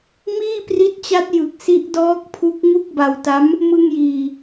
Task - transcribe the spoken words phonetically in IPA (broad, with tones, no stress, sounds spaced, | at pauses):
m iː˥˩ p r i˦˥ t̚ t͡ɕ a˦˥ t̚ j ɯ˨˩ k̚ s i˦˥ ʔ d ɔː˦˥ k̚ pʰ u˦˥ k̚ ŋ u˥˩ k̚ b a˧ w t a˦˥ m | m ɯ˧ ŋ j iː˨˩